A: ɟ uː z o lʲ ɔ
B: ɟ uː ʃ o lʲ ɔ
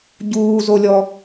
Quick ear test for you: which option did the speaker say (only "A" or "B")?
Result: A